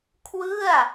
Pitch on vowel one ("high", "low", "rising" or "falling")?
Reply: falling